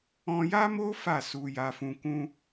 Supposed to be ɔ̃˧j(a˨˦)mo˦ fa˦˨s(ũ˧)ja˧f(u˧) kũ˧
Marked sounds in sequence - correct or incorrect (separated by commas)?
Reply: incorrect, incorrect, incorrect